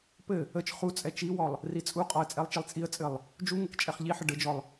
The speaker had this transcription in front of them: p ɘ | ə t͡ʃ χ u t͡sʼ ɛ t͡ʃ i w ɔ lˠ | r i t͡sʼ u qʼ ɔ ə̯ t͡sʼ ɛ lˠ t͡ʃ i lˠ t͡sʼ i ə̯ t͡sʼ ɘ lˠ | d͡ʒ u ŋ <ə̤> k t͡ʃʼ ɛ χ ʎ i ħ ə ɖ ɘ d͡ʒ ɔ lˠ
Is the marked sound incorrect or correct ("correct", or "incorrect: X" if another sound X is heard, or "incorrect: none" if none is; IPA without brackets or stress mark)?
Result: incorrect: ə